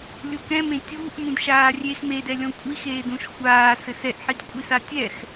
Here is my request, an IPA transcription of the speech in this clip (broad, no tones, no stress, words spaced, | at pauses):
lʲukɛ̃mẽ tʲuːʔ mũdʃaːrʲex medɛlʲɔ̃ kʷʼixeːdũʃ xʷaː sɘsɛʔħid kʷʼisatʲɛx